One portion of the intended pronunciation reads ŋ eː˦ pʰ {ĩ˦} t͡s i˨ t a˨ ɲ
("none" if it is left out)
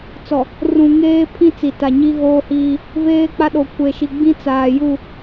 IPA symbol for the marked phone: ĩ˦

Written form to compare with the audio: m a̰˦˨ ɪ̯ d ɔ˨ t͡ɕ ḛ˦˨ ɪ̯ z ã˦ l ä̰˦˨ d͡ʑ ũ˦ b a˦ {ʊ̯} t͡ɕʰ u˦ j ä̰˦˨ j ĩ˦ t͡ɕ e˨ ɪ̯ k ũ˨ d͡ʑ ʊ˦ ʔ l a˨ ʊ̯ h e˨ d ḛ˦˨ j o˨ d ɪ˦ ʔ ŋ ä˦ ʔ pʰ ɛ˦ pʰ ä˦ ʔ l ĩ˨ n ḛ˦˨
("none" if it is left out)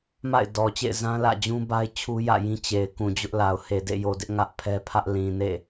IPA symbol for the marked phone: ɪ̯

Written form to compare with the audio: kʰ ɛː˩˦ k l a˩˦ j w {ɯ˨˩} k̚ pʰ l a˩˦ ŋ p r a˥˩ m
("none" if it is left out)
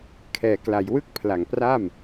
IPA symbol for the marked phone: ɯ˥˩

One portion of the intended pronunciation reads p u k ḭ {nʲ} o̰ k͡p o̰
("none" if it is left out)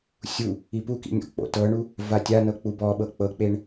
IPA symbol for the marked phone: nʲ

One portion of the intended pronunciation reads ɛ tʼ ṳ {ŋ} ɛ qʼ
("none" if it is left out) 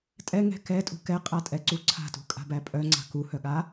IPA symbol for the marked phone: k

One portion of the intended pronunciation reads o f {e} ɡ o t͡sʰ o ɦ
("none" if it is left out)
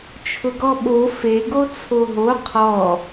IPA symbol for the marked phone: e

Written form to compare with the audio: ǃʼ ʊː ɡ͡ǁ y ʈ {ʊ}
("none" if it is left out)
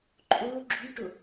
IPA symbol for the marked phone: ʊ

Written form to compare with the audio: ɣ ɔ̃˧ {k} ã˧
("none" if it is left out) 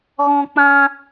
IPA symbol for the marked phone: k͡p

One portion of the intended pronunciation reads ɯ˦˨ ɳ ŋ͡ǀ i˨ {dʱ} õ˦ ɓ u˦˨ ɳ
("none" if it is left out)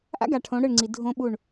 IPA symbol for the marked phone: dʱ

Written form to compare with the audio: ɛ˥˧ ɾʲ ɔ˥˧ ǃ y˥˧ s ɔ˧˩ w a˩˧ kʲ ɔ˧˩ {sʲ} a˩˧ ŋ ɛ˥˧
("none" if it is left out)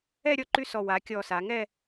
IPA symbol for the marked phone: s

